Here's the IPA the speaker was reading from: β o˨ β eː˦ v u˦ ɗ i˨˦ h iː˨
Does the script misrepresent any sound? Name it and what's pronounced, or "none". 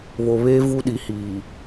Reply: none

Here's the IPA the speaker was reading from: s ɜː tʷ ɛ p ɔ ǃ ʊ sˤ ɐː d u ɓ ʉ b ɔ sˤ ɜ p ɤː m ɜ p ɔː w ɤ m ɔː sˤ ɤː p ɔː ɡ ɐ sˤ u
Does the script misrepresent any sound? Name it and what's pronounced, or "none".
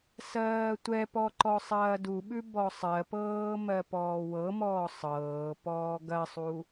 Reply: ʊ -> ɔ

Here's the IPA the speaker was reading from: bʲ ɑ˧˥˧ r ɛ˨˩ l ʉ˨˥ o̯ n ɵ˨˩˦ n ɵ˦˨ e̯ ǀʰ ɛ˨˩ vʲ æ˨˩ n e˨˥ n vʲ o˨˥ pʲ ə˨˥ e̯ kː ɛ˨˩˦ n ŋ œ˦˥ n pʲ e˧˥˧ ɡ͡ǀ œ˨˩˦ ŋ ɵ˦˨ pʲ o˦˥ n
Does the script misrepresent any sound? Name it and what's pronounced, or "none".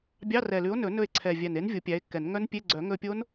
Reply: ə˨˥ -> æ˨˥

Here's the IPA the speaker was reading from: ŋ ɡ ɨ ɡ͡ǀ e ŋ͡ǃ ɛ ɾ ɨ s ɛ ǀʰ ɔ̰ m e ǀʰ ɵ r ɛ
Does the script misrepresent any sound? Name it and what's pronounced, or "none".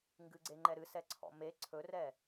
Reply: none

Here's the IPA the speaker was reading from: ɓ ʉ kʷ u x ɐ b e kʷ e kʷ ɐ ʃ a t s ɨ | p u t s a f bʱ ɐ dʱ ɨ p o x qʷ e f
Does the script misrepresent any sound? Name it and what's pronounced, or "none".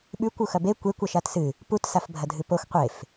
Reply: none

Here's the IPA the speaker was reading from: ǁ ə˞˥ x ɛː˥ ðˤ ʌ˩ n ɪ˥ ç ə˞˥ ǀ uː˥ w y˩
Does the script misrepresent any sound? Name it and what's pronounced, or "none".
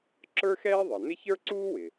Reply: y˩ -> ɪ˩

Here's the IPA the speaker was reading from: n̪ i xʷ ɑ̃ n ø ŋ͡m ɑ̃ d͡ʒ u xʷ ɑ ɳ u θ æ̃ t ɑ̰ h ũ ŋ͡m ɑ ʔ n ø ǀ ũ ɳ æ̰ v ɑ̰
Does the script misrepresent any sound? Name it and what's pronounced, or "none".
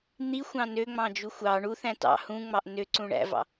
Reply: none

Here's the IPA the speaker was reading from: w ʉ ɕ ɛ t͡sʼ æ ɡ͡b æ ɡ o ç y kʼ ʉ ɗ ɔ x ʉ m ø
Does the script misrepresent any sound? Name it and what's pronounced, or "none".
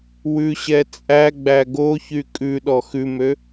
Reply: none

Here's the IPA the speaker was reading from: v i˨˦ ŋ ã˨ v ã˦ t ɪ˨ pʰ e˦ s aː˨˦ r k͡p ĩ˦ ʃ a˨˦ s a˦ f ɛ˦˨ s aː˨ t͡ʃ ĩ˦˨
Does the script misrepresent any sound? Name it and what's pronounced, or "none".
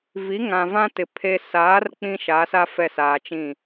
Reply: none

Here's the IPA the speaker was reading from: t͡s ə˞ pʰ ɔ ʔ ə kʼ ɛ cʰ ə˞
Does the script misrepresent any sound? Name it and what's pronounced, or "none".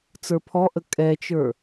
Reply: cʰ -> t͡ʃ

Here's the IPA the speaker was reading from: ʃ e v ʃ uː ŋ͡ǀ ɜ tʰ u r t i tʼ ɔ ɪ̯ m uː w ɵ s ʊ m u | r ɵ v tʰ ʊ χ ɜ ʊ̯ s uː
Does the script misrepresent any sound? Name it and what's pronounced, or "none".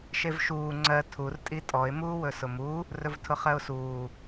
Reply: t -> tʼ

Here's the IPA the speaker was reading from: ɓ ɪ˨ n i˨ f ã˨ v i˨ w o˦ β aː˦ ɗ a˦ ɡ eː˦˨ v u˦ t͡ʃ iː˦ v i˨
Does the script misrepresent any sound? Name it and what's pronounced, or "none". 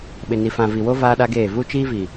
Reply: β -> v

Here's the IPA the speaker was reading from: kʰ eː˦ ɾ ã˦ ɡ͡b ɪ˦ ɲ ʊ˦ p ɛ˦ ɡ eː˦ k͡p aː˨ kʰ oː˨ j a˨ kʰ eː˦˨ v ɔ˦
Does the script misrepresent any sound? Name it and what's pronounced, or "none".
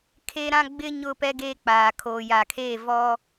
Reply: none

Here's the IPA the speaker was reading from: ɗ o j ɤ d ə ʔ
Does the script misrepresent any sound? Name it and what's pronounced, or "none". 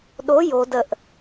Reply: ɤ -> o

